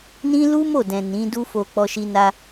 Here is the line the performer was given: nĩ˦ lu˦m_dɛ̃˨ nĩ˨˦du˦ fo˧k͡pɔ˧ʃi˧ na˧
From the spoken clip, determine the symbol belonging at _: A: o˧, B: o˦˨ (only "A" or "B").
B